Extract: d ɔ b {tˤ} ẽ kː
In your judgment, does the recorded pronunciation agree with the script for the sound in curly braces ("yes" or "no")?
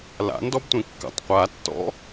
no